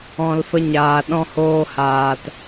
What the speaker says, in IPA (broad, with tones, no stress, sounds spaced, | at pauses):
ɔ̃˧ l f ə˦ ɲ aː˨ ɗ ɔ̃˧ h oː˧ h aː˧ t